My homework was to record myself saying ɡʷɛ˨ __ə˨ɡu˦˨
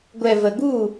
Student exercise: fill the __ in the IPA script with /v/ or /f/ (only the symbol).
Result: v